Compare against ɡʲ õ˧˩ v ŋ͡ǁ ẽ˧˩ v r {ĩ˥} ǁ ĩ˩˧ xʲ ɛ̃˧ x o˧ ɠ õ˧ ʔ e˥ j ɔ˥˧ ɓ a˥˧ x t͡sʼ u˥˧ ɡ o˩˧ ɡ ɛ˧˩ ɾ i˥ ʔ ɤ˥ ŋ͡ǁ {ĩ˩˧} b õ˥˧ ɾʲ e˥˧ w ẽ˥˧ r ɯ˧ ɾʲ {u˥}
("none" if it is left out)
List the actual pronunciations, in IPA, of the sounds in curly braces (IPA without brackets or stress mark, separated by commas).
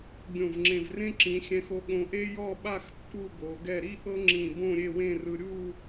ẽ˥, ĩ˧˩, u˥˧